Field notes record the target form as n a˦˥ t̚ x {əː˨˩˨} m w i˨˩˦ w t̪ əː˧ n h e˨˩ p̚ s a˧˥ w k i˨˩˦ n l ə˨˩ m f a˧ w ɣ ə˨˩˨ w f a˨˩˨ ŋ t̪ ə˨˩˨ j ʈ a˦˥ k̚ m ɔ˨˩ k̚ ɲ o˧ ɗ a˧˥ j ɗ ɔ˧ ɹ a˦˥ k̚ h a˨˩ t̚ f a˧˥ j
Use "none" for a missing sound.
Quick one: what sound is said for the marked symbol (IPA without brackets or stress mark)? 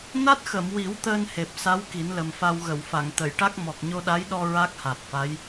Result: ə˨˩˨